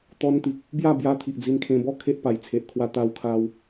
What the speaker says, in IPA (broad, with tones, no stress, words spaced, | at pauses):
t̪ɔ˧nt̪i˨k̚ | bja˥˧bja˧ t̪ʰi˨ʔd͡zi˧nkʰẽ˧ bɔ˦ kʰe˦ʔpa˨˩jt͡sʰe˨ʔ kʰwa˦t̪a˦wkʰa˦w